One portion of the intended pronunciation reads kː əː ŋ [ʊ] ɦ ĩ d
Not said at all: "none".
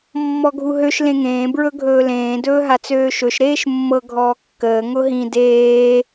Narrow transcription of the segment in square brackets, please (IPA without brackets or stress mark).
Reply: ʊ